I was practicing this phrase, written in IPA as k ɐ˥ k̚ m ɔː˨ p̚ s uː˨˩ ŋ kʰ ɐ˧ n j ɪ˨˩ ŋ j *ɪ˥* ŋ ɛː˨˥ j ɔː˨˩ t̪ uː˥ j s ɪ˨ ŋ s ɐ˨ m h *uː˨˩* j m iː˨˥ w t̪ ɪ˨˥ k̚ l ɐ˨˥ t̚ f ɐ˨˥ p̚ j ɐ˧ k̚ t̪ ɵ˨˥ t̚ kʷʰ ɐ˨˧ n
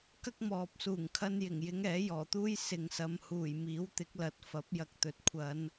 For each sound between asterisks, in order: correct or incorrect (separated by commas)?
incorrect, correct